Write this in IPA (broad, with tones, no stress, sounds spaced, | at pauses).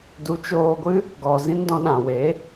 d u˨˦ t͡ʃ oː˧ ɡʷ ɨ˦ | ɡ ɔ˨ z ĩ˦ n d ɔ̃˧ ɗ ã˨ w e˨˦